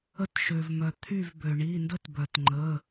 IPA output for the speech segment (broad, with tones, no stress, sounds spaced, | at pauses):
ə˧˩ t ʃ ø˩ v m œ˩ t̪ʰ y˧˩ v b ø˩ ɳ i˩˧˩ n d ə˦ t b œ˩ t ŋ͡ǃ ə˩˧˩